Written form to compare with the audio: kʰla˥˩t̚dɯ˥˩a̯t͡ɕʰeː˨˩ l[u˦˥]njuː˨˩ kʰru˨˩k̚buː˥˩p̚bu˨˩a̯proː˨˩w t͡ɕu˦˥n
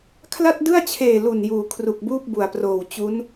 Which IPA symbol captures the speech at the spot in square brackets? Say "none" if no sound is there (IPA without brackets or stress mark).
u˨˩